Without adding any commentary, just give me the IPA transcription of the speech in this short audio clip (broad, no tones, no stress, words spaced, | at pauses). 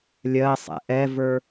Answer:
lʲɜsˤɛ̰ ʔɛvə˞